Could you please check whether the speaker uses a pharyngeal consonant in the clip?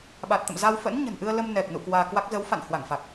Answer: no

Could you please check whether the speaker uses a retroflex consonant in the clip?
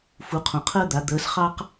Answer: no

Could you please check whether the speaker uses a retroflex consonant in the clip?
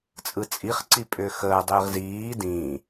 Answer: no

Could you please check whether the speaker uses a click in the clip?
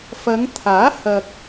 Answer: no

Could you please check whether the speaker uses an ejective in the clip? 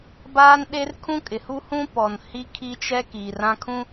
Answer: yes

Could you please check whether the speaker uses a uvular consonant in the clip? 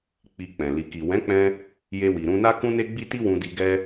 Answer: no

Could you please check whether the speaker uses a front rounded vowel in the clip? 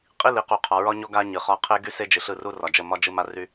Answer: yes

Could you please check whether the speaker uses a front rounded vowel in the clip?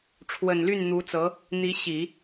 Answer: yes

